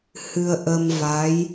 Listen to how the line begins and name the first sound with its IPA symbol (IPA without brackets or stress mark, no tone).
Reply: h